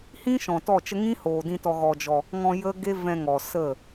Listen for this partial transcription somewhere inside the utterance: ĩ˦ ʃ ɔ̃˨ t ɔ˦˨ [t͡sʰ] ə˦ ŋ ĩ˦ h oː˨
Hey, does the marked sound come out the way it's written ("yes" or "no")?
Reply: no